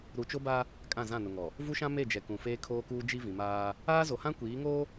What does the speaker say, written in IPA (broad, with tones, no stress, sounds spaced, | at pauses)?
ɾ u˨ t͡ʃ o˦ b a˦ | kʼ ã˦˨ z ã˦˨ n ʊ˨ ŋ ɔ˨ | v u˦ ʃ ã˦ m e˦˨ d͡ʒ ɛ˨ k ũ˨ f eː˦ kʰ oː˦ k uː˦ d͡ʒ i˦ v ĩ˨ m aː˦ | aː˦ z o˨ h ã˦ kʷ iː˨˦ ŋ oː˦